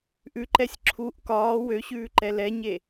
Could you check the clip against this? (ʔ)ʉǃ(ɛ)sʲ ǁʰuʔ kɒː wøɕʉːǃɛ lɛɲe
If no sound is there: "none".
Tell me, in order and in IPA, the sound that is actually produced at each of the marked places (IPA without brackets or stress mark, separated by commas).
ʔ, ɛ